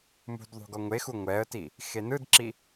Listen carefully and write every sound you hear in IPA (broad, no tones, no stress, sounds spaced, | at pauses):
m ṳ d ðˤ ṳ ɡ ɔ ŋʷ e x u ŋʷ ɛ ə̯ t i | x e n ɯ d ǁ i